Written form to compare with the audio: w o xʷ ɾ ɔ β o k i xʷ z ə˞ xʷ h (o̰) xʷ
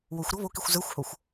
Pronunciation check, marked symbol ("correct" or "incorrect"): incorrect